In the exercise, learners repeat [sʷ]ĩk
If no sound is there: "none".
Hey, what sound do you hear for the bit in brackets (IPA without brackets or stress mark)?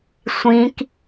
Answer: sʷ